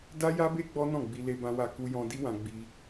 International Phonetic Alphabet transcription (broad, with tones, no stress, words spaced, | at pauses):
da˦ja˦be˦ ɡ͡bɔ˦nɔ̃˦˨ɡ͡bi˧ le˦bã˦wa˦˨ ku˧jɔ̃˧ di˦wã˧ɡ͡bi˧